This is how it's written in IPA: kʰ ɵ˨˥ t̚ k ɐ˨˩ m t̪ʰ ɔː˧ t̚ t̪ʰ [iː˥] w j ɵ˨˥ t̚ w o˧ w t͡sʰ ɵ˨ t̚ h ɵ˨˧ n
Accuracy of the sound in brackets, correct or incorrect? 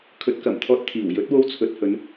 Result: incorrect